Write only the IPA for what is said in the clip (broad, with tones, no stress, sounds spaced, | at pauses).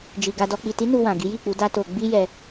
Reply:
d͡ʒ i˨ ɡ a˧ d ɔ˧ k͡p i˨ t i˨˦ n u˧ w ã˨ ɡ i˨˦ j i˦˨ k͡p u˨˦ d a˦ t o˧ ɡ͡b i˦ j ɛ˧